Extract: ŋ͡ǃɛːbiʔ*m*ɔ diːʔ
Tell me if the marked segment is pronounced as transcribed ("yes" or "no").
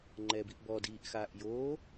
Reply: no